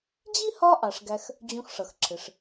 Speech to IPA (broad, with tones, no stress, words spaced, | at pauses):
d͡ʑi˥hɒ˦ʔɑ˩ʂ ɡæ˦x | d͡ʑũ˨xʂʌ˩xǁʰɪ˩ʂ